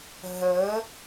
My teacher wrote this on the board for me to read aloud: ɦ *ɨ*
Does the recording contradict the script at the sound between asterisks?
yes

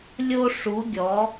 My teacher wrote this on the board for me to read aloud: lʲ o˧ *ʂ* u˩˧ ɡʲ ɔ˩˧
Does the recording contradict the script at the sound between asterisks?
no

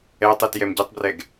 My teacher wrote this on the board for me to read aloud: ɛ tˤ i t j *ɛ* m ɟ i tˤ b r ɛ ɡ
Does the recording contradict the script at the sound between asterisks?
no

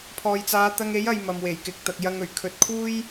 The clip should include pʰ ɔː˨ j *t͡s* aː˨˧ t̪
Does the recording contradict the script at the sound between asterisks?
no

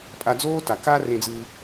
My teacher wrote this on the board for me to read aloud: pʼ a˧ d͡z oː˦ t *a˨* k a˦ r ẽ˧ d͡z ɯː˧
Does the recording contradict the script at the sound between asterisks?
no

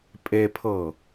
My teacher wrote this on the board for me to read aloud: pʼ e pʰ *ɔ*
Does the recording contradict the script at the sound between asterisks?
yes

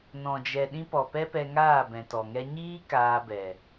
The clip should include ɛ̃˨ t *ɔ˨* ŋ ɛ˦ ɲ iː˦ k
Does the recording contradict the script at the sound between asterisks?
no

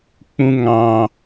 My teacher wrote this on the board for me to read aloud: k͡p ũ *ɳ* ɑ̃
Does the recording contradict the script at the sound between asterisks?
yes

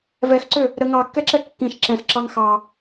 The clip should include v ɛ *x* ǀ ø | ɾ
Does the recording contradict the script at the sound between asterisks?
no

